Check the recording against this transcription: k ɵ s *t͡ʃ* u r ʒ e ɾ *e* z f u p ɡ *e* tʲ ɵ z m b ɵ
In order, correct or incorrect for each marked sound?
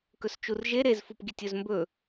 correct, correct, incorrect: i

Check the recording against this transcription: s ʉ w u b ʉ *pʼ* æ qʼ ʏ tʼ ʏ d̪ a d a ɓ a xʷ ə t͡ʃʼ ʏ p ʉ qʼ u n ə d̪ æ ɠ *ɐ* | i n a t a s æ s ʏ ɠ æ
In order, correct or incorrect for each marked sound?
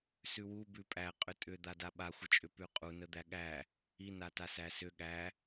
correct, incorrect: æ

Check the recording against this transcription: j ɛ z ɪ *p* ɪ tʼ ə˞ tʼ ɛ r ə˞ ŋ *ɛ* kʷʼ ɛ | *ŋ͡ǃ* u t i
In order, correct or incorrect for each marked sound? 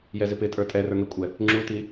correct, correct, incorrect: ŋ͡ǁ

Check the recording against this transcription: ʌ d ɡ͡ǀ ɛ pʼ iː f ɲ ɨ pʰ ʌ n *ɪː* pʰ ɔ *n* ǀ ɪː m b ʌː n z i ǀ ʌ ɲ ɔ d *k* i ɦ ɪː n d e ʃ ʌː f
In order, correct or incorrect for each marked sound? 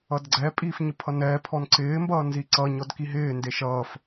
incorrect: ɛː, correct, correct

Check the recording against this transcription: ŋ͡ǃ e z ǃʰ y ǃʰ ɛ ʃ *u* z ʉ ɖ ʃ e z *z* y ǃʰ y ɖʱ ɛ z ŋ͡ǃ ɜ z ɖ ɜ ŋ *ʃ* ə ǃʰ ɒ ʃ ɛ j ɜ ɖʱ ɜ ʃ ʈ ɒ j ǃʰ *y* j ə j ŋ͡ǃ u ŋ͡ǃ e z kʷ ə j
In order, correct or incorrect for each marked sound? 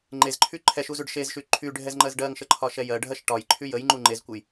correct, incorrect: ʃ, correct, correct

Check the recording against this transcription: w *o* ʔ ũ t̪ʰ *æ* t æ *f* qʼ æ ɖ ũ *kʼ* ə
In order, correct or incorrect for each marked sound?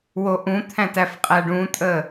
correct, incorrect: æ̃, correct, incorrect: tʼ

